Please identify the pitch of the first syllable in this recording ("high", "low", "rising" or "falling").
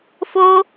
high